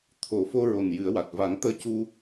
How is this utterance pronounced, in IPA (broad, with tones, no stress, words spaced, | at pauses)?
t̪ʰo˨˩fo˧ɹo˨˩n jɨ˨˩˦ə̯wa˨˩t̚ va˨˩˦ŋt̪əː˧cu˧